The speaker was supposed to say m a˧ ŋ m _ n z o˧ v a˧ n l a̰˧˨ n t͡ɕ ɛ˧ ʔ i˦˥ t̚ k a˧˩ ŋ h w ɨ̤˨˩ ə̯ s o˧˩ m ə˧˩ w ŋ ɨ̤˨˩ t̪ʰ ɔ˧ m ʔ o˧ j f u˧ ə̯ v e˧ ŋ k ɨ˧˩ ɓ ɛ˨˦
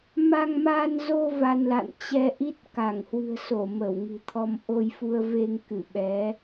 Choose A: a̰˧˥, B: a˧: B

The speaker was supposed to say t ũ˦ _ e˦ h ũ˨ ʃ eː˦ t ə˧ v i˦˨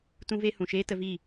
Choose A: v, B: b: A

